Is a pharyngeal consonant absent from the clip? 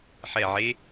no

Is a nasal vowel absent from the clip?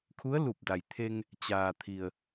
yes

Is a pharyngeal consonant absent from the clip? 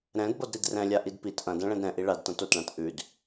yes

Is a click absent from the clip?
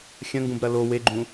no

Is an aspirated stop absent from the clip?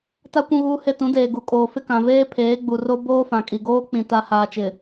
no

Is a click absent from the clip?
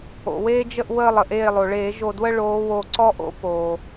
no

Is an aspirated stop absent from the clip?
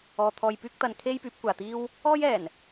no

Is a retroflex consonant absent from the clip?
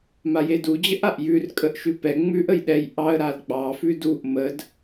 yes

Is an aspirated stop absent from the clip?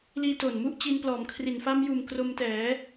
no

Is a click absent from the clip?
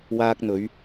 yes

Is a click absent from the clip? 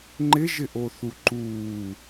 no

